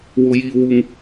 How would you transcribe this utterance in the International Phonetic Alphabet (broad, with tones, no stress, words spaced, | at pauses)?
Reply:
wʊ˨jiː˨wu˨ŋ